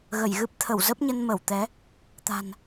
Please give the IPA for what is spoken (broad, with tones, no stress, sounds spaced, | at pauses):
ɣ ə˧˩ j ɣ ɨ˦˥ p̚ t̪ʰ ə˧˩ w z ə˦˥ p̚ ɲ ə˧ n m ə˧˩ w t̪ ɛ˨˦ | t̪ a̤˨˩ n